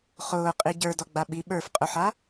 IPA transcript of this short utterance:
χʊːqʼi ɟə˞dɔɡ͡ba ɓi ɓə˞fqʼʊħa

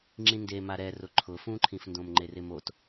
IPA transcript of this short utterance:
ŋ͡ǁĩndema ɾɛrʊ ǃʰʊfũǃʰĩfndõm ŋ͡ǃerɪmot

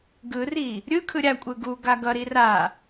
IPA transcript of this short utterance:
ɡɯri | ɾʲɯkʰɯ ɾʲakʷʼɯ ɡuɡa ɡʌɾi ra

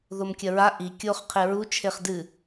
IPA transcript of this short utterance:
ðomkʲɐɹa ʔi kʲoχ qʰeɹu t͡ʃʰeχdɨ

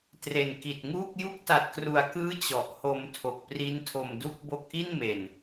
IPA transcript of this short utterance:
tre˨˩nki˨˩t̚ŋuː˥˩k̚ ju˦˥k̚ta˨˩t̚kru˨˩a̯kɯː˦˥ t͡ɕɔ˨˩ʔho˧m tʰo˨˩k̚pri˦˥ntʰo˧mdu˥˩k̚ bo˦˥k̚ʔi˥˩nme˨˩n

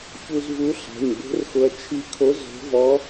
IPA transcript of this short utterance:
çu˧zvu˧˥ ɬa̤˩˧˩ɲbo̤˧˥rxʊ˧ɐ̯ t͡ʃʰi˧˥kʰo˧˥ zo̤˧˥vɔ˧˥

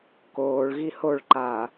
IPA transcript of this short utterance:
koːɭɣi hoɭ ǃa

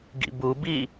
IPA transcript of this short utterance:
ɡḭbubi

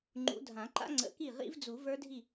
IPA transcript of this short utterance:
ŋ͡ǃṵ˨˦dʱã˨˩˦ǃa̰˦˥ ŋ͡ǀə̰˨˩˦ki˥˩ ʁḭ˦˥vd͡zu˨˩˦ və˞˦˥dʱi˥˩

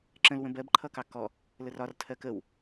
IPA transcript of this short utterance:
ǁə̃lwə̃ bɜbǃʰʌkɑ kɔ | lərɒrtʰɜ kəw

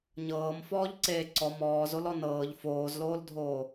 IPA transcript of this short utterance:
ɲɤːm fɔːʎǀeːǀɔ mɔːzolɔ nɤːʎ foːzloːldʱoː

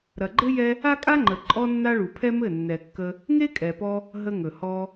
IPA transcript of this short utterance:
ɾɐ˨ɡ͡ǃɘ˦ jɛ˦ | a˦kʼa˦ŋ͡ǃə˨ ǃʼɔ˦nːa˦ɭu˨ pʰɛ˦mɘ˦˨ nːɛ˨ kːə˧ | ŋe˦kʼɛ˨pɔ˧ | ɦə˧ŋɵ˨ hɔ˧

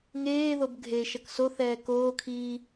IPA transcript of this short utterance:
ŋeːðob ɡʱeʃʌk soθɛː koːkʰiː

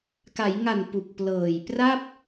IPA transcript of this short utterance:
ka˩˦jŋa˨˩n pu˨˩k̚plɤː˨˩j pra˥˩p̚

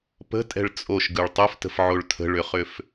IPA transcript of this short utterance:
pə̤tʼɛ̤ɭ t͡sʼoʃɡɯɭ tˤoftə̤fʕoɭ tʰə̤ɭʏχʏf

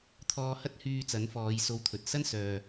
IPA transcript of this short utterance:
t̪ʰɔː˧hɐ˥t̚hyː˧ t͡sɐ˨˥nfɔː˨˧jso˧wt̪ʰɵ˨t̚ sɐ˥nsœː˨

